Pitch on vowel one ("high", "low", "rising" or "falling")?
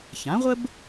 rising